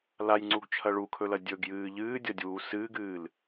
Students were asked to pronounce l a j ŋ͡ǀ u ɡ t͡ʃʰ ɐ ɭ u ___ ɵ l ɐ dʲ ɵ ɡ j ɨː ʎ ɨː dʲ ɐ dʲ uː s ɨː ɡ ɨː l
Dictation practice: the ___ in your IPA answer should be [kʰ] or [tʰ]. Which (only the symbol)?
kʰ